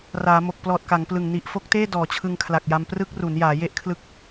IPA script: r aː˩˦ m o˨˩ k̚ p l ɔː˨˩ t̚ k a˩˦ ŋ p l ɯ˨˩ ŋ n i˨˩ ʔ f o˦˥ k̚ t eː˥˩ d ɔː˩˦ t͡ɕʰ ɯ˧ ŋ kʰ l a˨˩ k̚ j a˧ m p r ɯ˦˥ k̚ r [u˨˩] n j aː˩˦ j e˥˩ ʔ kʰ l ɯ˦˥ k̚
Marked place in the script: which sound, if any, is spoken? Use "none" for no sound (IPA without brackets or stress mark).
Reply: u˩˦